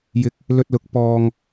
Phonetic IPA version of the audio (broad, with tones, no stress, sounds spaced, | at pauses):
j ɪ˧ k̚ | l ɵ˧ t̚ l ʊ˨˥ k̚ p ɔː˧ ŋ